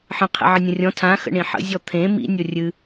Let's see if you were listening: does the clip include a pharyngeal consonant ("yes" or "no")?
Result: yes